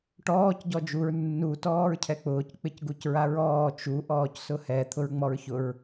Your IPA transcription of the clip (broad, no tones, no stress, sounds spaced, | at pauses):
ʈ ɔː c ɟ ɔ d͡ʒ u ɹ nː u t ɔː ɹ cʰ ɛ k͡p ʊː c k͡p ɪ c ɡ u c ɹ a ɹ ɔː t͡ʃ u ʔ ɔː c s ʊ h ɛ t̪ʰ ʊ ɹ ŋ͡m ɔ ɹ ç ʊ ɹ